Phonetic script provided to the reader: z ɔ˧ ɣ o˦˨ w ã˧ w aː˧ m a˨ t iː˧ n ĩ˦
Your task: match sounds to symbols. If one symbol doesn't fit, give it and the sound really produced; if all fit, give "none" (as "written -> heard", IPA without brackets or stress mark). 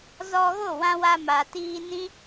aː˧ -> a˧